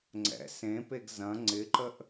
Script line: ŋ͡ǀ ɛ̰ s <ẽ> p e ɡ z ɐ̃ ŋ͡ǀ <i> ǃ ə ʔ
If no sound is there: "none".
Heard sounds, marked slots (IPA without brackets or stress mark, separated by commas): ẽ, ɪ